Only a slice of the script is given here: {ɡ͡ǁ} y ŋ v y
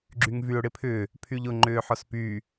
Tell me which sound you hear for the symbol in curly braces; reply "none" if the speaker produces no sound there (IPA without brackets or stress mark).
ɡ͡ǁ